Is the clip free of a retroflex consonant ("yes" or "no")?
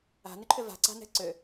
yes